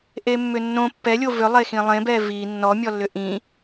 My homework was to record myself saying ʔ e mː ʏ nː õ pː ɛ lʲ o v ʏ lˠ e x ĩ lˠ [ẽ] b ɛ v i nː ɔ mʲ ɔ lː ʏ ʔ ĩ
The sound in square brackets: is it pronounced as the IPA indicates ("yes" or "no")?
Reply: yes